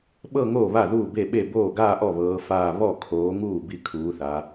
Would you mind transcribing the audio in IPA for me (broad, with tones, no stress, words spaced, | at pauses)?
ɓɤ˥˧ŋoː˥˩βa˥˩ ðuː˥˩be˥˩ɓe˥˩ boː˥˩ɡaː˥˧ʔɔ˥˩βɤː˨˦ faː˥˧ βɔ˥˩kʰoː˨˦ŋuː˥˩ bi˥˩kʰuː˨˦θa˨˦